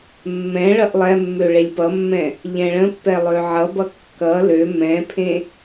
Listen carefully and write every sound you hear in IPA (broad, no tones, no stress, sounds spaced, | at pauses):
mː ɛ̃ ɭ ʌ ʔ lˠ ɛ mː ø ɭ e lʲ p ʌ mː ɛ̃ | ʎ ɛ̃ ɭ ə̃ pː ɛ lˠ ø ʕ ʌ b ʌ kː ʌ l ø m ɛ̃ pʰ ẽ